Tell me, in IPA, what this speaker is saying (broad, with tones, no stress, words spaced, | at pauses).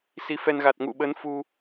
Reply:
si˨˦fɛ˧n ɣa˨˩t̚ŋṵ˧˨ɓə˨˦n fu˧